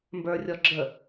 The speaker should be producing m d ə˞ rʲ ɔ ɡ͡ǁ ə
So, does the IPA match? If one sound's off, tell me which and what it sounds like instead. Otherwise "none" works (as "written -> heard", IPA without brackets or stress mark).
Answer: d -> b